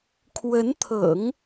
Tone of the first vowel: rising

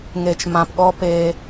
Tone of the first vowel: low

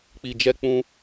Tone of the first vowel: low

